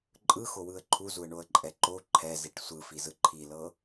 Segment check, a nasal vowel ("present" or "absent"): absent